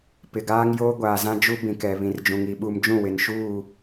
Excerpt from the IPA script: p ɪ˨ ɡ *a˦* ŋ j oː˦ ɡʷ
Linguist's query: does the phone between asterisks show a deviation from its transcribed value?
yes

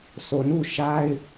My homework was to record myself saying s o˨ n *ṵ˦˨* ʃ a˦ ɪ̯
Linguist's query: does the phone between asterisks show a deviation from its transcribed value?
no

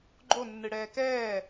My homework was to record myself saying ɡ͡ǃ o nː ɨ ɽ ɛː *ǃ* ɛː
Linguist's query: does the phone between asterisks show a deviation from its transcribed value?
yes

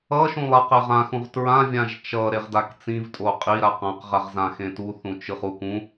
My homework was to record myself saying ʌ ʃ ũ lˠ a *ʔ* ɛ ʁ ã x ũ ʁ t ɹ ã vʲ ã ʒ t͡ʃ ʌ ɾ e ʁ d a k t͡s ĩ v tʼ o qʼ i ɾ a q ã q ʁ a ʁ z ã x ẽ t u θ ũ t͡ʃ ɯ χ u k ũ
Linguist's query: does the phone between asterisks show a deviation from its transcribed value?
yes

